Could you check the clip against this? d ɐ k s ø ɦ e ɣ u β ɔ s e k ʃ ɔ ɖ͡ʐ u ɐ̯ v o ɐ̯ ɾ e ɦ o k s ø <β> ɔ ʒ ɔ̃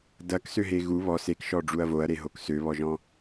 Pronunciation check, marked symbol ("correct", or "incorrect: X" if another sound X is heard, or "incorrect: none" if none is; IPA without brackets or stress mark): correct